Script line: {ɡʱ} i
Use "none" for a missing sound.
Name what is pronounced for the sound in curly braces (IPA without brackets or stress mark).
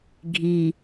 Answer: ɡʱ